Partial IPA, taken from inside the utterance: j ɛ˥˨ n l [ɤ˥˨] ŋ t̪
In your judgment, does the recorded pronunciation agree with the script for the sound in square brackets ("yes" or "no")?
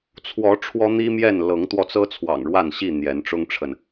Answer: no